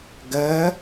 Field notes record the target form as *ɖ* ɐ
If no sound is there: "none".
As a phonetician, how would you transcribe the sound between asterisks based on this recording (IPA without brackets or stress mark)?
ɡ